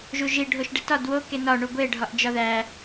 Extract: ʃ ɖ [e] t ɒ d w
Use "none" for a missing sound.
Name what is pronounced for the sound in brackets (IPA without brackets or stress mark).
e